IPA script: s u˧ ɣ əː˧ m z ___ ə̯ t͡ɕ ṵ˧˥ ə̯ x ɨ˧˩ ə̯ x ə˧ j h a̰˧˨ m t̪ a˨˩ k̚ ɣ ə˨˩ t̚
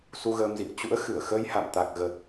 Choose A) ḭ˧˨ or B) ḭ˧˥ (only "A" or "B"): A